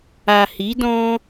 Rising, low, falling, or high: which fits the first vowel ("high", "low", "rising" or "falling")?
low